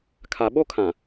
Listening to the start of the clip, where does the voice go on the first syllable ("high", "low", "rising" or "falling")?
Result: low